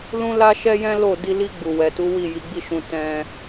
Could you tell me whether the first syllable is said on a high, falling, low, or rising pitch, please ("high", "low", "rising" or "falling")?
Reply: high